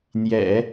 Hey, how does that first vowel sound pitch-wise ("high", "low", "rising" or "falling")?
low